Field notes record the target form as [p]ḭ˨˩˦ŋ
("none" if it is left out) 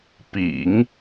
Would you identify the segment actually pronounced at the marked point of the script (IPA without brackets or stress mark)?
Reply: p